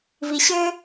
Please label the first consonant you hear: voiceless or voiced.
voiced